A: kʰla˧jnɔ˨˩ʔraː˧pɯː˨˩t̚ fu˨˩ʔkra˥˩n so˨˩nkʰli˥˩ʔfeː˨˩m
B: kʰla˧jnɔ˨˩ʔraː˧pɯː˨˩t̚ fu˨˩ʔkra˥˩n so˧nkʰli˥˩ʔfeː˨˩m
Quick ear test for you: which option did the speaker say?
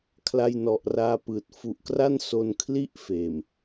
B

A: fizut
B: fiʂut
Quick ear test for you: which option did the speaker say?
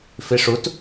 B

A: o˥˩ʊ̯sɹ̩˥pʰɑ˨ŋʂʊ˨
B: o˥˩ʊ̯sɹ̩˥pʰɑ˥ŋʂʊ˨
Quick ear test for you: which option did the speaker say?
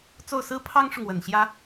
B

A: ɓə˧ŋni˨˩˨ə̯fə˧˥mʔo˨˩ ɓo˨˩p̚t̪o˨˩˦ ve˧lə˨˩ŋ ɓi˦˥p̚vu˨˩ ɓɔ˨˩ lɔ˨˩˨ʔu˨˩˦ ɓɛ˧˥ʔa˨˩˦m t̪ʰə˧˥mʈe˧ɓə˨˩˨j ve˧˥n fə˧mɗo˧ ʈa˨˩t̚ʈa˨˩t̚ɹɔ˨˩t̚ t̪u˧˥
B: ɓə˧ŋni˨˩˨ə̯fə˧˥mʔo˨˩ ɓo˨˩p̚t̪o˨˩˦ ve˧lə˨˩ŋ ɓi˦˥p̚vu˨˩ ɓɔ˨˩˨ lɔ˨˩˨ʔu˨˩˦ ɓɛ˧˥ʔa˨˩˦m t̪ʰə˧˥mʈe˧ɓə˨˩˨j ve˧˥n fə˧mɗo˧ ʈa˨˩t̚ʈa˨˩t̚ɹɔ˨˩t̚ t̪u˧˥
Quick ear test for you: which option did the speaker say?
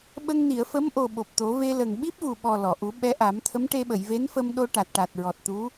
A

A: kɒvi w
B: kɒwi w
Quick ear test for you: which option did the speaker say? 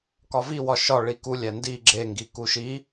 A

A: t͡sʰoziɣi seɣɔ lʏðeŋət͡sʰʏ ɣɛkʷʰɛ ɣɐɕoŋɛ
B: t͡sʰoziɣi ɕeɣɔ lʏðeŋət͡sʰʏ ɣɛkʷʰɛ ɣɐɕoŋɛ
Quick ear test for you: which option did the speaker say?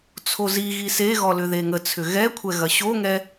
A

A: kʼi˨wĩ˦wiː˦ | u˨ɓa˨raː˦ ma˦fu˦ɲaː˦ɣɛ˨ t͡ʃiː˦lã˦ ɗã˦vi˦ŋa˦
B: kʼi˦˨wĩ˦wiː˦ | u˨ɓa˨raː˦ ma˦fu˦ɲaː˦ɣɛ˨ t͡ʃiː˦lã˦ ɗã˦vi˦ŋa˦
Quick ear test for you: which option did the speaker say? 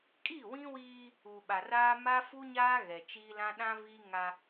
B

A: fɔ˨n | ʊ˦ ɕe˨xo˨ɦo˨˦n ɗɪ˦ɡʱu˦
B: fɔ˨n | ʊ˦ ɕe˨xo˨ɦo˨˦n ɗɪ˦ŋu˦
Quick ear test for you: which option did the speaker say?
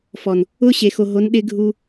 A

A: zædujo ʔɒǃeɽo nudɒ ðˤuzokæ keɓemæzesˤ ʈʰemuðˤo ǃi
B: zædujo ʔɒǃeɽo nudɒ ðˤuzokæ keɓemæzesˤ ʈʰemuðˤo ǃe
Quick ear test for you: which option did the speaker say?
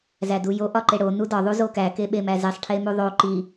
A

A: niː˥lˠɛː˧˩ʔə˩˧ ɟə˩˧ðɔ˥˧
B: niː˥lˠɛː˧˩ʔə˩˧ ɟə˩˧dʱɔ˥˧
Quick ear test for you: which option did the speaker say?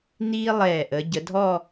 B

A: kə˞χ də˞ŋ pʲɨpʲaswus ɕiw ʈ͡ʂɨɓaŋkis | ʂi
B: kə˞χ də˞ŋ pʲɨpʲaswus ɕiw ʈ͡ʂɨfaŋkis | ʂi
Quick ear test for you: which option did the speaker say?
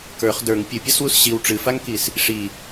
B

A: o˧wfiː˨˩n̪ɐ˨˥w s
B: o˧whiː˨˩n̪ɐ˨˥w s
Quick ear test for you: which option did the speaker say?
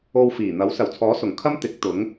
A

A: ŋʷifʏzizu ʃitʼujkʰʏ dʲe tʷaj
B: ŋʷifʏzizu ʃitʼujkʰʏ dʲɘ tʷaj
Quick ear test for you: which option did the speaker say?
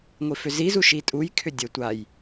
B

